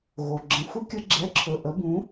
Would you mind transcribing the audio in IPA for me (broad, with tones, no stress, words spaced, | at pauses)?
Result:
ɣo˩ɡ͡ǁə̃˩˥ xʷə˧kʲə˧ ɡ͡ǁɛ˩˥ǁʰɵ˩ ʔə˩˥bũ˩˥